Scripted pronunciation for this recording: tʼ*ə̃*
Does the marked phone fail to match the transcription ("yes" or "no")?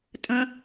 no